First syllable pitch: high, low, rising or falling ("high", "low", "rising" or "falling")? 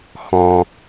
low